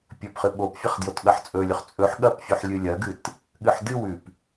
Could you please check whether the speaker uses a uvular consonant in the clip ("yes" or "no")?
yes